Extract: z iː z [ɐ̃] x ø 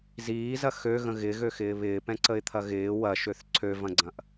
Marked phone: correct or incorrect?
incorrect: ɐ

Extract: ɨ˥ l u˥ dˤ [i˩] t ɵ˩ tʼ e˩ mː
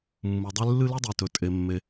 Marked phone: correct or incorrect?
correct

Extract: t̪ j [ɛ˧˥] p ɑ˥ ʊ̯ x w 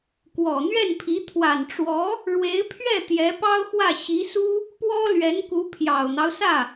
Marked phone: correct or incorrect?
correct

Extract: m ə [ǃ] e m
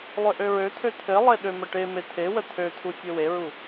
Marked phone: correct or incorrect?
incorrect: ʈ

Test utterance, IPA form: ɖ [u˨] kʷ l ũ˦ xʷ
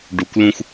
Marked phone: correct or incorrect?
correct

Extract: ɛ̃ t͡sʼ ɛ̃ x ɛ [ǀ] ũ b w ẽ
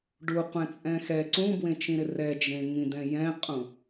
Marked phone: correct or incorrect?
correct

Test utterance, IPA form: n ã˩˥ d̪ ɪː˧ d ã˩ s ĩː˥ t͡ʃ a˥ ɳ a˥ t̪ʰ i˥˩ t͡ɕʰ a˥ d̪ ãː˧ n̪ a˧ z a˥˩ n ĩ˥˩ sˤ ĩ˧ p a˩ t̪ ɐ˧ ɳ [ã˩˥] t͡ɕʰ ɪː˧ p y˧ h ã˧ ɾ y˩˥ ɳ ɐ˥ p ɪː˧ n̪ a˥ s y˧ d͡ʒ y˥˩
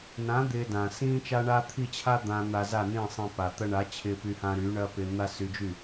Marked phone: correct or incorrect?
incorrect: a˩˥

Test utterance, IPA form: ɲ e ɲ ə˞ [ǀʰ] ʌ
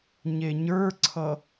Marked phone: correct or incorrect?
correct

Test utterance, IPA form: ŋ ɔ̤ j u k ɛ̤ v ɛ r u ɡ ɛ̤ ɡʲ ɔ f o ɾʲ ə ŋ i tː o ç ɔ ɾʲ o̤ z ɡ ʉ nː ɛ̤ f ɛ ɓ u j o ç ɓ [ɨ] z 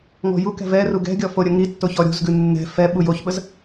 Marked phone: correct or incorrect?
incorrect: ə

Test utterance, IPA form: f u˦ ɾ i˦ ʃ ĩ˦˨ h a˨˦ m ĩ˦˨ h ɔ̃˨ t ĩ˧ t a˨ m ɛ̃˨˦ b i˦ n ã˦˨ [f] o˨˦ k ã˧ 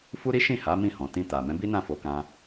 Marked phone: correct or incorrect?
correct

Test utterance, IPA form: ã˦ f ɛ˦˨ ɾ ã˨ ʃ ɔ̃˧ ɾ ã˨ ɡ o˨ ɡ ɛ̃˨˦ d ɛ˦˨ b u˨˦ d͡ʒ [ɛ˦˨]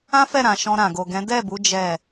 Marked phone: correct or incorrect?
correct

